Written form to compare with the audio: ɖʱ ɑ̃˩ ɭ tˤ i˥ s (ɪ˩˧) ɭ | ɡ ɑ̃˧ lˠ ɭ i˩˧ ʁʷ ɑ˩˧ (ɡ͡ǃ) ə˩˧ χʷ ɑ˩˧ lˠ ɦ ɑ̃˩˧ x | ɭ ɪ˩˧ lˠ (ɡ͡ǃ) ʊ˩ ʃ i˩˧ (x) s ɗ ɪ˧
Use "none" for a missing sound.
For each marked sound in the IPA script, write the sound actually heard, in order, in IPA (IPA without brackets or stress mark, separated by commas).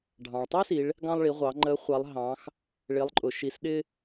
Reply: i˩˧, ŋ͡ǃ, ǃʼ, none